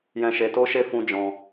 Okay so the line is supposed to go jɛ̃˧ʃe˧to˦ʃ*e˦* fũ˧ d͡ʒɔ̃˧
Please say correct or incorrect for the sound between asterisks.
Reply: correct